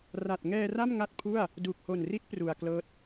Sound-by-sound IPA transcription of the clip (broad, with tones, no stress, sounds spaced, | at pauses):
r a˨˩ t̚ ŋ ɛː˧ r a˥˩ m ŋ a˥˩ t̚ pʰ u˥˩ a̯ | d u˨˩ k̚ h o˨˩ n r i˦˥ t̚ p r u˨˩ a̯ k l ɤː˦˥ t̚